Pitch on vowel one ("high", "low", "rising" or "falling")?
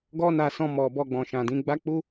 high